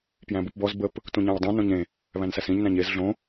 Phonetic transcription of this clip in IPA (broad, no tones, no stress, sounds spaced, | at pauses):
p j æ̃ b u p b ɔ z b ə p | t ũ ɲ æ̃ w dˤ ũ n õ ɲ ẽ | β æ̃ n s æ s ĩ ɲ n æ̃ ɲ e z ɮ õ